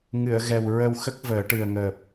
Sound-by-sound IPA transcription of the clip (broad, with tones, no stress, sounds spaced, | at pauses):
ŋ ɨ˨˩˨ ə̯ ɣ ɛ˨˩ w ɹ ə˧ w x ə˦˥ k̚ v əː˨˩˦ ʈ ɨ˨˩ ə̯ ŋ əː˨˩ p̚